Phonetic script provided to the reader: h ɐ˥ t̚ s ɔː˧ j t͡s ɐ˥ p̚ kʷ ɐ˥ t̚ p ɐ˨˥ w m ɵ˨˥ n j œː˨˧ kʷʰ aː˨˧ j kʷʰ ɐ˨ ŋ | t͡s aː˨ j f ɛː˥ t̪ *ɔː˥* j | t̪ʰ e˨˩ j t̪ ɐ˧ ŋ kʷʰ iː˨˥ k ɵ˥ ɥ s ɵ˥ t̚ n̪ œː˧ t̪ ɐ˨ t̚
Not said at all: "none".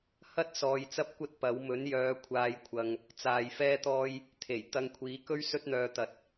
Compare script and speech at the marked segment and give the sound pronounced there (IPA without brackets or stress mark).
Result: ɔː˥